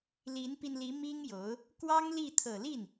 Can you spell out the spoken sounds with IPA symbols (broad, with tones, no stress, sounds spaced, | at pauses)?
l i˧˥ n p i˧ n l i˧˥ m i˥ ŋ j o˧˥ ʊ̯ | k w ɑ˥ ŋ l i˥˩ t̪ʰ ɤ˨˩ l i˥˩ n